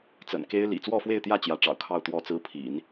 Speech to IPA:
t͡sə̰˨˩nke˥ɪ̯lḭ˨˩ t͡swɔ˥˧fwe˥˧ɪ̯t̪jä˥˩ t͡ɕjä˧˥ʈ͡ʂɑ̰˨˩ʊ̯kʰɑ˥˧ʊ̯ t̪wɔ˥˩t͡sɹ̩˥pʰḭ˨˩˦n

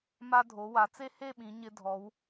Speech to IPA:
ma˧dʱo˩˧ wa˩˧t͡se˥he˥˧ɓĩ˩˧ ɲɪ˧dʱɔ˩˧w

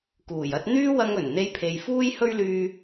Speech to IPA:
kuː˨˩jɐ˧t̚ n̪yː˥wɐ˧ŋ ɵ˨˩n n̪e˧jpʰe˨jfuː˥j hɵ˥ɥlyː˧

